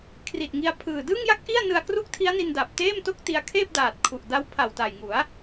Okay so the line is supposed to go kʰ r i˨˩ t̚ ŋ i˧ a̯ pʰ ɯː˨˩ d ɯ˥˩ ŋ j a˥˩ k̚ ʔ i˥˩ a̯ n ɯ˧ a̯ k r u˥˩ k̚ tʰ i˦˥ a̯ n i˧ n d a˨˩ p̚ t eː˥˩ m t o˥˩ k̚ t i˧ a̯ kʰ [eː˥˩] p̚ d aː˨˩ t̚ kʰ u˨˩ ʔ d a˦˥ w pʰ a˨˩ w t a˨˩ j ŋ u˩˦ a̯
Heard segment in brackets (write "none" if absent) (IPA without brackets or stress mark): eː˥˩